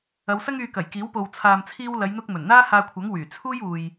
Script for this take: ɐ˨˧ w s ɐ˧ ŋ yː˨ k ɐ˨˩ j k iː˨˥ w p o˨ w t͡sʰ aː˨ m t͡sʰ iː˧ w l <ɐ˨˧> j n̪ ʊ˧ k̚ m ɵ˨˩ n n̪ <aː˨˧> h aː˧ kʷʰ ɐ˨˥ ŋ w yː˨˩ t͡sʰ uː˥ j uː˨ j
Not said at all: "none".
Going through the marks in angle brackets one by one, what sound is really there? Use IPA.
ɐ˨˧, aː˥

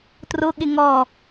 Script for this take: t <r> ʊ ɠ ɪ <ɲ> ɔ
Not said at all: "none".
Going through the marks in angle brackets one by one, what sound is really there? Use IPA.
r, ŋ

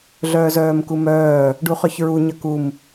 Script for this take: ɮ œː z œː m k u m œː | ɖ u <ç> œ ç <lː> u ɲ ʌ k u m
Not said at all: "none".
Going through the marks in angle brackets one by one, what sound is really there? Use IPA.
χ, ɹ

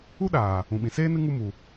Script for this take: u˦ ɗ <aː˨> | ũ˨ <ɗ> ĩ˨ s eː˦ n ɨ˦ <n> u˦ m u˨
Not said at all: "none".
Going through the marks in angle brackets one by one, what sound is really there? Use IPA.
aː˨, ɓ, ŋ

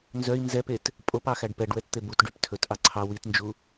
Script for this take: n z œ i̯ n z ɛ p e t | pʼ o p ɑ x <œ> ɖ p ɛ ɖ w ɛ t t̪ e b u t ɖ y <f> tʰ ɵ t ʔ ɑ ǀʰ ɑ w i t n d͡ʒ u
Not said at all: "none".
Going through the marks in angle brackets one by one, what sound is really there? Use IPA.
æ, p

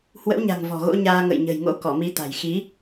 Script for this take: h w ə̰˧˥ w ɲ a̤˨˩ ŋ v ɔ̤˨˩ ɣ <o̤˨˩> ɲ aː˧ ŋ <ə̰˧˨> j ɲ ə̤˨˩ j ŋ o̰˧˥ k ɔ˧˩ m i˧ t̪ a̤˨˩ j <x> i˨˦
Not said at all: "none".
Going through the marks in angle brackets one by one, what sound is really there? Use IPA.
o̰˧˥, ə̰˧˨, x

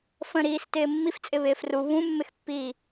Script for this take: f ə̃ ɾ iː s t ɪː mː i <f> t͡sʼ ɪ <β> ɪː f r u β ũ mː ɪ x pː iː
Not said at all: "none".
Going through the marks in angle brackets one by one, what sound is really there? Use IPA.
f, β

